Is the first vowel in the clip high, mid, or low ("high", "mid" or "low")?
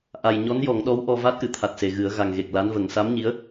low